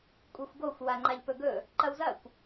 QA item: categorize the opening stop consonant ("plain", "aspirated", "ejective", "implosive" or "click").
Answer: ejective